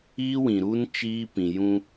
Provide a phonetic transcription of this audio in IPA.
iː˦ w ĩ˨ ɾ u˦ n t͡ʃ iː˦ p ĩ˨ j ũ˦

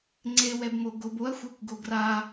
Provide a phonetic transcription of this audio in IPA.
ŋ͡ǀ e w ɛ b m o ɡ o b o ɐ̯ xʷ a kʷ ɡ o ɡ r a

